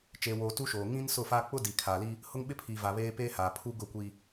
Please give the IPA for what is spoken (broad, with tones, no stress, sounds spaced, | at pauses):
t͡ʃ eː˦ w oː˦ t u˦ ʃ oː˨ ŋ ĩ˦ n s ʊ˦˨ f a˦ k͡p ʊ˦ d i˨ kʰ a˨ l i˦ | h ʊ˦ ŋ ɓ ɪ˦ pʰ iː˨ v a˨ β eː˦ p eː˦ h aː˨ pʰ u˦ ɡ ʊ˦˨ kʷ i˨